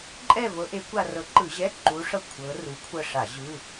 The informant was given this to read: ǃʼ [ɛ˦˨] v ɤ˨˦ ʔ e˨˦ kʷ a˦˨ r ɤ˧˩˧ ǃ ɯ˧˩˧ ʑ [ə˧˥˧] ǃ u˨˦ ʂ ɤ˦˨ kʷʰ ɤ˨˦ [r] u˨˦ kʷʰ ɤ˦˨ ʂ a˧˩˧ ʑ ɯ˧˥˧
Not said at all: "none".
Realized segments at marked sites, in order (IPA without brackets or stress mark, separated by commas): ɛ˦˨, ɛ˧˥˧, r